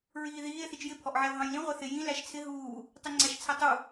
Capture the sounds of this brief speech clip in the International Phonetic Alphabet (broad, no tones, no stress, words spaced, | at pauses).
ɹiːðiːe̯ θit͡ʃjɪ pʰɔʔʕɛo̯ɦɑ̃jlĩ ʁʷɛθɪ jĩ læʃt͡sʰɪ ɦuː | tˤiŋ͡ǀæʃt͡sʰɛtˤu